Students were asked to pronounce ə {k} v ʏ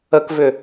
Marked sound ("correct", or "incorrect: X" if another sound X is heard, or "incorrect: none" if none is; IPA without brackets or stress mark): correct